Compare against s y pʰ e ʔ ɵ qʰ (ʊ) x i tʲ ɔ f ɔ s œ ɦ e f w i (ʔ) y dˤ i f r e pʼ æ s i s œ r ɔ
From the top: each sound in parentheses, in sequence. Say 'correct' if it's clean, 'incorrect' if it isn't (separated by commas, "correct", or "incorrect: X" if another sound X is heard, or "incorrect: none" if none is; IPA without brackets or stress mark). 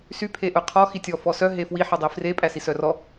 incorrect: ɔ, incorrect: ħ